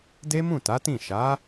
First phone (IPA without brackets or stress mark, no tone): d